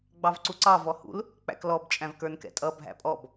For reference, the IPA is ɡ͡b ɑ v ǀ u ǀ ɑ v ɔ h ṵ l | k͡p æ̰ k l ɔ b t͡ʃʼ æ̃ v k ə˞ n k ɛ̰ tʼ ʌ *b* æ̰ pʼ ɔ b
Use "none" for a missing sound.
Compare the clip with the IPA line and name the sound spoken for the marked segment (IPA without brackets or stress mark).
bʱ